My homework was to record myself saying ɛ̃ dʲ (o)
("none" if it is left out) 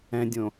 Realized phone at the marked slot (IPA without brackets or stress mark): õ